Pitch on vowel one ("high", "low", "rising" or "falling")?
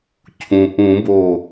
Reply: low